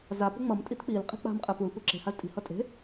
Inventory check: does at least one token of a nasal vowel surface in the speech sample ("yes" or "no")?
no